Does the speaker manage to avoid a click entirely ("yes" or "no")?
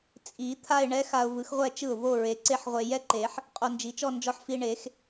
no